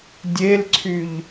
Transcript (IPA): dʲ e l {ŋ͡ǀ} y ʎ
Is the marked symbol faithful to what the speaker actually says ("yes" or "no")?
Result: no